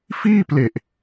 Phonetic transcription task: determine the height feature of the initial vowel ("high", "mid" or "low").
high